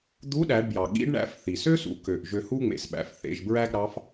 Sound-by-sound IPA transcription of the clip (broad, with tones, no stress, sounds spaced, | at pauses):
d̪ u˧˥ ɗ æ˩˧ ɖ b j ɑ˩ ɠ ḭ˧˥ ɖ ɳ æ̰˧ f θ i˩ s ø˥ s ṵ˩˧ k ø˩ ʔ ʒ ø˧ h u˥ ŋ͡m ḛ˩ s ɓ æ̰˩˧ f θ ḛ˩˧ ʒ b ɹ æ˥ ɡ ɾ ɑ˧˥ f